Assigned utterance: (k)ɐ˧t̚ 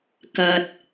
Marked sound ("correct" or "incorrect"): correct